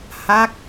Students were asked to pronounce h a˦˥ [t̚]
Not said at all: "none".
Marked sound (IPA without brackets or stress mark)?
k̚